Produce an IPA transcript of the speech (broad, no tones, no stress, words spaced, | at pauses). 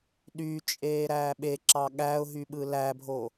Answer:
ɗyt͡ʃʼeː ɾæːɓeǁɑ ɠæʊ̯ ɦyɓɯlæbʱo